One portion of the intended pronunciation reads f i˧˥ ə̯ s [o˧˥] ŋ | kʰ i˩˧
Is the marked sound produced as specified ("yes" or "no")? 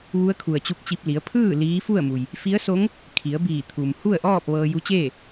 yes